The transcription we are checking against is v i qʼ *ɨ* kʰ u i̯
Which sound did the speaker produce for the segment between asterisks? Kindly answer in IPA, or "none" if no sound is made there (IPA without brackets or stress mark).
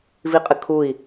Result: ɨ